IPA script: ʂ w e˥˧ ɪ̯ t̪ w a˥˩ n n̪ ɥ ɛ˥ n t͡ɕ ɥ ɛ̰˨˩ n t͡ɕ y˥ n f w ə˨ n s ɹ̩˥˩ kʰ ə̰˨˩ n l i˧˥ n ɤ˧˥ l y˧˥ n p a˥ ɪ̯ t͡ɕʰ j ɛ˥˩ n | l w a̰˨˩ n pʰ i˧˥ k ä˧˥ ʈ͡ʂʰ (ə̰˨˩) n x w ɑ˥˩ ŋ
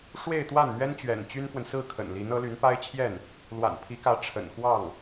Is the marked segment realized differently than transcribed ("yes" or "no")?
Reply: no